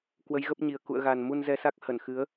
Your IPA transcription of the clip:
k w ə˨˦ j ɣ ə˦˥ p̚ ɲ i˨˩ ə̯ k ṵ˧˨ ə̯ ɣ a˨˩ n m u˧ n z ɛ˧ s a˦˥ k̚ h ə˧˩ n x ɨ˨˦ ə̯

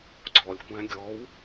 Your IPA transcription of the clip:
ɡ͡ǀ ɔ lʲ kʷ æ̃ ɡʲ ɔ w

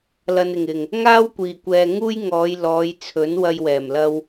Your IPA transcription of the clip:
l ɐ˨ n ɪ˨˩ ŋ ɪ˨˩ ŋ | ŋ aː˥ w kʷ iː˨˩ kʷ ɛː˨ ŋ uː˥ j ŋ ɔː˨˧ j l ɔː˨˧ j t͡sʰ ɵ˨˥ n w ɐ˧ j w ɛː˨˩ m l ɐ˧ w

